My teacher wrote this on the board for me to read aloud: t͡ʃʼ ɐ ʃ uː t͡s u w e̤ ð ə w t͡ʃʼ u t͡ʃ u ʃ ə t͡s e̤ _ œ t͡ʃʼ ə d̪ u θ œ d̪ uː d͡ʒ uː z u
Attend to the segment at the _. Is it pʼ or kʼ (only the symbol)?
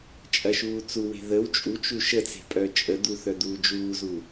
pʼ